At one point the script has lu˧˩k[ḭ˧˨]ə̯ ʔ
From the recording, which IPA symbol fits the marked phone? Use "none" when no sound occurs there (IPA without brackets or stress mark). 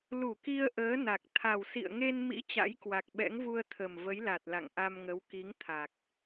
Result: i˧